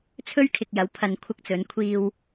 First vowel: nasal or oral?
oral